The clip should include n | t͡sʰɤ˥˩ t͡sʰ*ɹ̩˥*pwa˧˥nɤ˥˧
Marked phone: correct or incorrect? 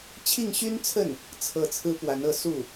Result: correct